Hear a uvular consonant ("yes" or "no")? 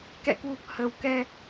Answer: no